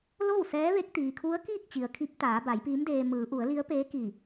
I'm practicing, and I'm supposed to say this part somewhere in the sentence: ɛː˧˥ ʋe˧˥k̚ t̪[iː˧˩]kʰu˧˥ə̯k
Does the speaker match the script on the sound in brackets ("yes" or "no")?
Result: no